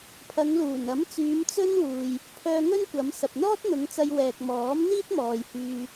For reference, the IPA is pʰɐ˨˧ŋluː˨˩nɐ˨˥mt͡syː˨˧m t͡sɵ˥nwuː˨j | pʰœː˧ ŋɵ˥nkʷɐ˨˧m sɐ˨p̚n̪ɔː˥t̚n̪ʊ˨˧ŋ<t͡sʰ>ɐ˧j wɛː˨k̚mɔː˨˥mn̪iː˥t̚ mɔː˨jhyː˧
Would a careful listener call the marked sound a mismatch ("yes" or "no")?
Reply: yes